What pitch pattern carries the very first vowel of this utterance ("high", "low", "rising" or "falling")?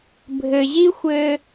low